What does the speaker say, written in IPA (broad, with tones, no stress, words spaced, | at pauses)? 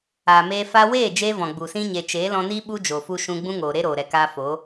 aː˨meː˧ fa˧weː˦˨ d͡ʒeː˦vɔ̃˨ɡ͡bu˨sĩ˦ ɲe˨t͡ʃeː˨˦lɔ̃˧niː˦ ɓu˦d͡ʒo˨fu˧ ʃũ˧ɡ͡bũ˦ŋoː˨ ɾe˦ɾoː˨ɾɛ˨kaː˧ fo˨˦